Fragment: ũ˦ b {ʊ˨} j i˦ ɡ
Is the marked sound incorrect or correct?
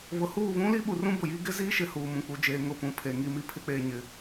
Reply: correct